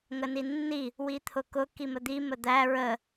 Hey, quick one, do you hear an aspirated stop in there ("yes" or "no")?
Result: yes